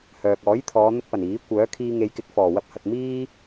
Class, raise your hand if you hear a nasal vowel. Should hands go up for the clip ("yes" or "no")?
no